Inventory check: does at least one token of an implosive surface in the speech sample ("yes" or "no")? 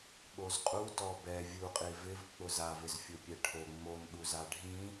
yes